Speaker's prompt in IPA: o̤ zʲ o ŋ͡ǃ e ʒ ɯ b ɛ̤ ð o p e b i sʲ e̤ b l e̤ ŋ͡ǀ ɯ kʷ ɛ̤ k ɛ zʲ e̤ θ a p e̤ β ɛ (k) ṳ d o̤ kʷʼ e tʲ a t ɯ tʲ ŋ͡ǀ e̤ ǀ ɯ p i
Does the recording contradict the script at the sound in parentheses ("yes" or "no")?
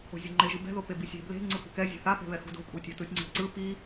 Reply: yes